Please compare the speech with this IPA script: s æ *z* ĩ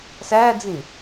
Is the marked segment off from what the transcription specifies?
yes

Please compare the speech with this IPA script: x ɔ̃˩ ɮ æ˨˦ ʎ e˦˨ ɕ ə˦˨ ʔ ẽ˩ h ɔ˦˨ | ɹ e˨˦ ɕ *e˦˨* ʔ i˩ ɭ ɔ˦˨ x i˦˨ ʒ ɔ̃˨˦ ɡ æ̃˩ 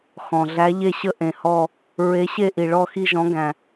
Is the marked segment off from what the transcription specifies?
no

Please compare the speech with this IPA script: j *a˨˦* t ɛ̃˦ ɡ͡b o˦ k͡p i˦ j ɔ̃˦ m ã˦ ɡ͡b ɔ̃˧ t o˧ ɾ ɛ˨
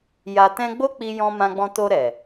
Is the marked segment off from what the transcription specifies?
yes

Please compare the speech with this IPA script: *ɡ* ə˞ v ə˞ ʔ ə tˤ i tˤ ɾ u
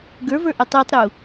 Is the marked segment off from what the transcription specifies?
no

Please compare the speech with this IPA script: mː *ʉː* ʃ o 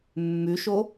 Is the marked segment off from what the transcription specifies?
yes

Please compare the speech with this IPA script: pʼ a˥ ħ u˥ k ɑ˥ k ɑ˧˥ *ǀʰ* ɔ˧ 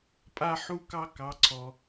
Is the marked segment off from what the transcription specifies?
no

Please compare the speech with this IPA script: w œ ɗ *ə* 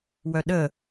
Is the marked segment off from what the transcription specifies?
no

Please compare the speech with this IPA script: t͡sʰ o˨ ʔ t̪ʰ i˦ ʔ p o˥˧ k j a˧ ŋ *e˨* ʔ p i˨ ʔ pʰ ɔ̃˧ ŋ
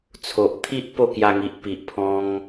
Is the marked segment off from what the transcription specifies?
yes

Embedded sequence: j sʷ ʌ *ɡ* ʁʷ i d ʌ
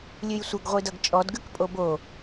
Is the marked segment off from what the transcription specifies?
no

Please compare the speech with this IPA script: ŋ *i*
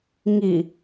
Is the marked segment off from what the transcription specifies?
no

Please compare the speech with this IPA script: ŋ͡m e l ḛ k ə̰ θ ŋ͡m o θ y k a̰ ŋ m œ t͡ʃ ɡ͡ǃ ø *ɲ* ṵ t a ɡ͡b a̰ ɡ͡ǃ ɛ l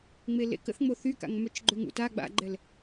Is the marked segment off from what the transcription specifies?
yes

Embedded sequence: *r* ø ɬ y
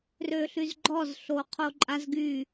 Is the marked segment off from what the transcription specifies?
no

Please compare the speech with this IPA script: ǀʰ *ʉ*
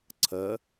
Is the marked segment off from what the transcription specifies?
yes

